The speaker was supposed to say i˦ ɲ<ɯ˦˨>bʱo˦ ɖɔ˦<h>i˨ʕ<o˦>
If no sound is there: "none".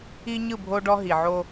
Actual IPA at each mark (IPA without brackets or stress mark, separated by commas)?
ɯ˦˨, ɦ, o˦